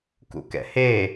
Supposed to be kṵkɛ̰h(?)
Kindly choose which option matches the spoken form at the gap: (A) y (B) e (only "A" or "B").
B